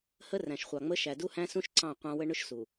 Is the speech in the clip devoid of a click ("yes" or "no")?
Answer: no